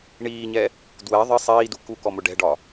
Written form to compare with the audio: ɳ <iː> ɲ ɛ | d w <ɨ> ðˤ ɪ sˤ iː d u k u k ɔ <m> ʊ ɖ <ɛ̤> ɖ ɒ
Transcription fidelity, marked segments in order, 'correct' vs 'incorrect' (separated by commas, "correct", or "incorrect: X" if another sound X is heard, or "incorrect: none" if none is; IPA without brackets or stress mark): correct, incorrect: ɛ, correct, correct